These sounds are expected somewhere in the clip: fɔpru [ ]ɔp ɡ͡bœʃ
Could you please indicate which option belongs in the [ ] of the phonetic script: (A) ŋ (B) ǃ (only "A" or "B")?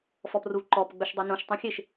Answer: B